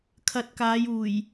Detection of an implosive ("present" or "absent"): absent